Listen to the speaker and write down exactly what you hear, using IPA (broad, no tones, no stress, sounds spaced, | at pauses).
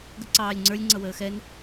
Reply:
ɡ ə ǀ ɑː lʲ ŋ͡ǀ ə˞ lʲ ŋ͡ǀ ʌ w əː x ɛ n